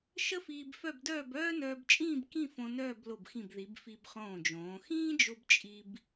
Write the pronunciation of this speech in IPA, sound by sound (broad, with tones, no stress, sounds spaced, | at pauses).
ʃ ə˥ f iː˧ b f œ˥˧ b d œː˥˧ b œː˥ n œː˧ b t͡ʃʼ ĩː˥˧ b k ĩ˥˧ f õ˧ n œː˥˧ b l o˧˩ b x ĩ˧˩ b ð i˩˧ b f i˧ b χ õː˧˩ d͡ʒ õː˩˧ x ĩː˥ d͡ʒ o˧ b t͡ʃʼ i˧ b